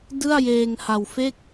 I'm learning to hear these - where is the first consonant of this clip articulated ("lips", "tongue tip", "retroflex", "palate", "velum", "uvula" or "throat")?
tongue tip